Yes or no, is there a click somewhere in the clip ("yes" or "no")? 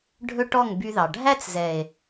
no